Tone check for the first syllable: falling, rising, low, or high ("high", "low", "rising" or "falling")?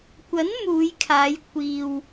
rising